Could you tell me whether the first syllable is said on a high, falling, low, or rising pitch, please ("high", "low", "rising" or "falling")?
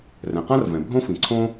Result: low